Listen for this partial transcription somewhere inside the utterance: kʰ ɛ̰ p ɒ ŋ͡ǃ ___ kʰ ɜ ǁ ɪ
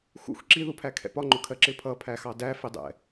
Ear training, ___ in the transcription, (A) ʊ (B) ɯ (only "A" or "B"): A